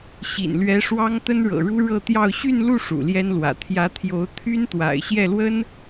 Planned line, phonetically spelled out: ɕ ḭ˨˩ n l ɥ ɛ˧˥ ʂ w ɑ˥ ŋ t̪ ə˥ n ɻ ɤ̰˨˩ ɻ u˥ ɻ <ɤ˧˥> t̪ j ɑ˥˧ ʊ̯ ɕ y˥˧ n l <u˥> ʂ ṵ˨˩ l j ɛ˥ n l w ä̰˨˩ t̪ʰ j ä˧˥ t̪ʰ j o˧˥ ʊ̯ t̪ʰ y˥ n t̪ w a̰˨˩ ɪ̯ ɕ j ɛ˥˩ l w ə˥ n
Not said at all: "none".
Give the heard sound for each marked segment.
ɤ˥˧, u˥˩

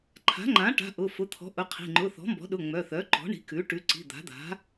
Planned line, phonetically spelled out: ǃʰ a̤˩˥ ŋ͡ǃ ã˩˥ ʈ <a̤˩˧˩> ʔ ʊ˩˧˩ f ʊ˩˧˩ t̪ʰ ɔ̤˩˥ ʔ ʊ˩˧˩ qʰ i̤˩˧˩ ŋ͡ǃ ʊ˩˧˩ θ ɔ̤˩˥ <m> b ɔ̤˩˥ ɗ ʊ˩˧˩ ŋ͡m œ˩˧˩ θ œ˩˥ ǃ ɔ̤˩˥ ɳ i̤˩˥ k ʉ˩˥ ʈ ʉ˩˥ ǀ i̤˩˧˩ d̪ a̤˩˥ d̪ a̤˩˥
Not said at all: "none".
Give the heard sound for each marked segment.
a̤˩˧˩, m

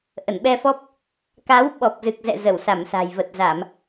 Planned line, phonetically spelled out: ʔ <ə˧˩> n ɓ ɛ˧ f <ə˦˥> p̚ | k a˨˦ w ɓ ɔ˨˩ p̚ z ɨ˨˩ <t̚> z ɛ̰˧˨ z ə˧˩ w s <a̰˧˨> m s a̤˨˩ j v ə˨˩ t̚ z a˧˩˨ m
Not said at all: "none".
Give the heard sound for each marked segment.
ə˧˩, ɔ˦˥, k̚, a˧˩

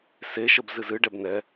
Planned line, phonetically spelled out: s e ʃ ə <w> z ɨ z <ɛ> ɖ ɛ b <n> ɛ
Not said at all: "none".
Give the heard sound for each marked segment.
b, ɨ, n

